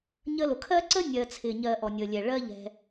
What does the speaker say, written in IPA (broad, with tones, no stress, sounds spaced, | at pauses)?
ɲ ə˦ l ʊ˩ kʰ ɜ˥ ǀ ə˥ nʲ ɜ˨ t͡sʰ ɪː˩ ɲ ɜ˨ ʔ ɔ˩ nʲ əː˩ lʲ ɛ˩ ɭ ɜ˦ ʎ ɛ̤˨